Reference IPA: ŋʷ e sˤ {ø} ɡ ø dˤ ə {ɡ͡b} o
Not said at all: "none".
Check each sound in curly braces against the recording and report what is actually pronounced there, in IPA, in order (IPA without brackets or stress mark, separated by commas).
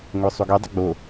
u, ɡ͡b